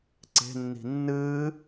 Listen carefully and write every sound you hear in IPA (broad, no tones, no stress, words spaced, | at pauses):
ǀe̤nːi̤ nːɨː